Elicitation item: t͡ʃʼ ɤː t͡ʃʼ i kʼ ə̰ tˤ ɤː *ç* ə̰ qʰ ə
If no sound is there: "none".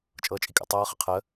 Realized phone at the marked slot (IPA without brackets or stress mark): χ